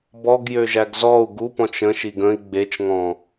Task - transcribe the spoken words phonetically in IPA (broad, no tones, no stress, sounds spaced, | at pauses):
b ɔ ɡ j ø ʒ æ ɡ z ɔ u̯ ɡ u p ɔ̃ t͡ʃ ə̃ ʃ i ɡ ə̃ i̯ ɡ͡b e t͡ʃ ŋ ɔ̃